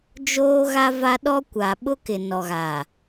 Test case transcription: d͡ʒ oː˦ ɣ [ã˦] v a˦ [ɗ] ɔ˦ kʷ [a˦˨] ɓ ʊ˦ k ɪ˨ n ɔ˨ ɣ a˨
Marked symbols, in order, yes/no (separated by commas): no, yes, no